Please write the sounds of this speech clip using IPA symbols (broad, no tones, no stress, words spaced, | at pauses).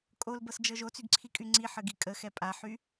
kʼolbɤsd͡ʒɤ ʒot͡syɡǀʰikʼy ŋ͡ǀiħəɡi kʼəxɛ pʼaħy